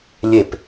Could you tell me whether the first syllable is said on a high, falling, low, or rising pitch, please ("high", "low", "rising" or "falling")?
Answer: falling